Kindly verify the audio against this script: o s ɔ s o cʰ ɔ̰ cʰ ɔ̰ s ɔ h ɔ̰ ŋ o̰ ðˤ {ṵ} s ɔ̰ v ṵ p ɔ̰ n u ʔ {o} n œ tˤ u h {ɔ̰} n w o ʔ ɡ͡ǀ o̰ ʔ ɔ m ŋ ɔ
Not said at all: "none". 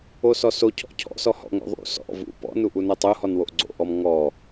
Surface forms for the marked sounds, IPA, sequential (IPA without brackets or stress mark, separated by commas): ṵ, u, ɔ